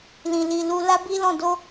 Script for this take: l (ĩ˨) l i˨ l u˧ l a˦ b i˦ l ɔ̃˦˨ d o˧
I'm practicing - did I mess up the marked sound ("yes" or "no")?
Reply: no